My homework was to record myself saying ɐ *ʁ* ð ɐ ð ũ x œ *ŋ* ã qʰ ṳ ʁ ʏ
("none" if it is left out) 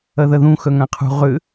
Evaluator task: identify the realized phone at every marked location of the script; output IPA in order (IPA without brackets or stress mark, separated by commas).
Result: none, ŋ